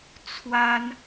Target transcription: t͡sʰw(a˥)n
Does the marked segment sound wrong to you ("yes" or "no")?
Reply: no